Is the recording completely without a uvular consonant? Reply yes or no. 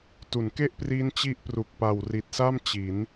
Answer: yes